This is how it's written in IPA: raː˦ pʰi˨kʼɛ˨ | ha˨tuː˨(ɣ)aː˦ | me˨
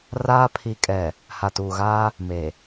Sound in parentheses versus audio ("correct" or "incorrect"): correct